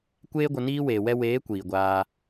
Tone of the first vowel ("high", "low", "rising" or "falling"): high